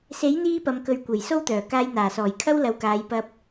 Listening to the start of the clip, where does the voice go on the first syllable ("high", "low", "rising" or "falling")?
rising